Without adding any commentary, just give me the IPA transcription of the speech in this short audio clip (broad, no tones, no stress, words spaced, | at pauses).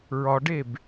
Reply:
ɹɒɖeb